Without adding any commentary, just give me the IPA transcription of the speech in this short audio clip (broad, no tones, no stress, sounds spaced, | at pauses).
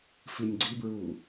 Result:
f i nʲ ɡ͡ǀ i b ɹ uː